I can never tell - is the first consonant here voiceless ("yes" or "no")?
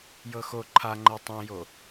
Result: no